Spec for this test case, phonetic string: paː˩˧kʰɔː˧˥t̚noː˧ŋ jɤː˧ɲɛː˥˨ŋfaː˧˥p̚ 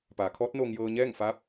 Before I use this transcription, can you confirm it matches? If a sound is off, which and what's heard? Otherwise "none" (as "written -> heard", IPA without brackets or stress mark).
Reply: none